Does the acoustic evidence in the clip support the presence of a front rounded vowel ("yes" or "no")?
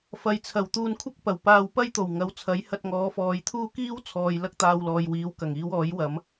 no